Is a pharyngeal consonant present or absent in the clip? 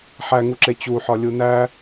present